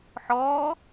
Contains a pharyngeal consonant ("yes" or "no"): yes